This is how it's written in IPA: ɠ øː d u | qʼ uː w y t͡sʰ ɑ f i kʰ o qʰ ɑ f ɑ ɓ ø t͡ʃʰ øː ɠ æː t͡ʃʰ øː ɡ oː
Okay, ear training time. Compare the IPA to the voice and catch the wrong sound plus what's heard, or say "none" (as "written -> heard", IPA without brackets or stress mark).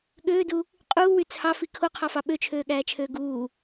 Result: oː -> uː